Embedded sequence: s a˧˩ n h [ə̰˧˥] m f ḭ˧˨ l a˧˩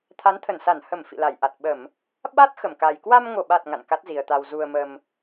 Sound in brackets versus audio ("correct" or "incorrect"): incorrect